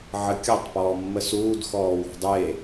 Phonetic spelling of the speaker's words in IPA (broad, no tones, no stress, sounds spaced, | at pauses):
ʕ ə kʲ ɤ tˤ p ɔː mː ə s uː d x ɔː w ɔ̤ dˤ e